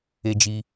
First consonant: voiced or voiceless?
voiced